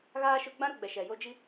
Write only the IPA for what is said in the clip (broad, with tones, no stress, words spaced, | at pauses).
ɣaː˦ ʃʊ˦ ɡ͡bã˦ɾʊ˦˨ɡ͡bɛ˨ ʃɛ˨jo˦ d͡ʒi˦